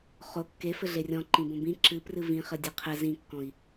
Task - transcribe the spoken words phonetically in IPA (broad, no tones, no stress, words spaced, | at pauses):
χo kːefɘ ɮerʲɔ̃ ǃĩbõbĩ ǁɨprɨ vĩχɘ dʲeqʰɘ zĩkːɔ̃i̯